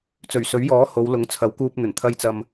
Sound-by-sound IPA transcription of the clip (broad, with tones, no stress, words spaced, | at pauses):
t͡sɵ˨˩ɥsɵ˨˥ɥjɔː˨˥ ho˨˧wlʊ˨˥ŋ t͡sʰɐ˨˥wkuː˧p̚n̪ɵ˨˩n t̪ʰɐ˧jt͡sɐ˨m